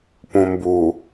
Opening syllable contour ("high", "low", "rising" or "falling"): low